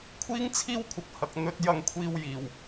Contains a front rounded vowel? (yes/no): no